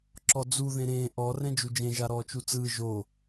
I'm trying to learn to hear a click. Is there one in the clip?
yes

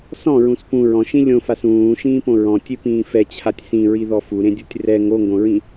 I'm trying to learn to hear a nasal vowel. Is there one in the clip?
yes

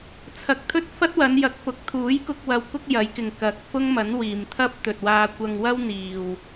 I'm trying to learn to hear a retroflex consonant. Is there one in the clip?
no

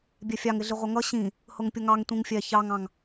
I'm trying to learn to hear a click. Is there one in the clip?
no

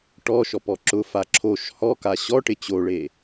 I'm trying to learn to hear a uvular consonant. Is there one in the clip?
no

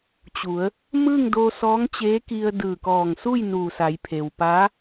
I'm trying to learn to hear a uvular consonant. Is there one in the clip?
no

